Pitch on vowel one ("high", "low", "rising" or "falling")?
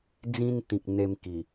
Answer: high